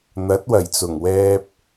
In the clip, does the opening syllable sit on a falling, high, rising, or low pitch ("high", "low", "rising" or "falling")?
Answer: rising